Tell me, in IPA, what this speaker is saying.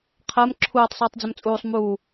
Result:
qʰ ɜ m ǁʰ uː tˤ sˤ uː tˤ d͡z ʊ m t͡sʼ uː sˤ m uː

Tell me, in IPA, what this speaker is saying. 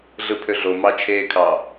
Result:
ɮ ɯ pʰ ø ɮ o m ɑ t͡ʃʰ eː kʰ ɑ

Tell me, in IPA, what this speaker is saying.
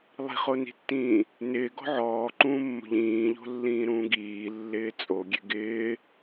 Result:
lˠ i̤ χ o n i̤ tː ĩː | n ɪː ɡ ɔ̤ ʕ ɔː ǃ ũː mː o̤ ʎ ĩː ʎ o̤ lː ĩː ɾ ũː ɡ iː lː ɪː t͡sʼ o ɡʲ e ɡ ɪː

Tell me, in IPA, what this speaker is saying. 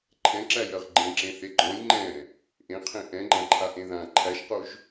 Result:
ǃʰ ɛ̃ ǁ æ j ɜ ʁ ɡ͡ǃ ẽ ǁ ẽ θ e ɡ͡ǃ ɔ̃ j ŋ͡ǃ ɛ̃ | ʔ ẽ qʰ ẽ ʔ ɛ̃ ɡ͡ǃ ã ǃʰ a ʔ ẽ ð ã ǃʰ æ ʃ q o ʒ

